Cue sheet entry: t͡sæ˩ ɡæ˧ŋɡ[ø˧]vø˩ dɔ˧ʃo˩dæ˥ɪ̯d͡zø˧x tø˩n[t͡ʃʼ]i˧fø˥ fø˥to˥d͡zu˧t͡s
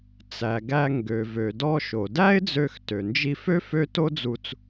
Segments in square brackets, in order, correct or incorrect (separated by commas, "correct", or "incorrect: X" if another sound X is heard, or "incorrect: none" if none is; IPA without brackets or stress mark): incorrect: ø˩, incorrect: d͡ʒ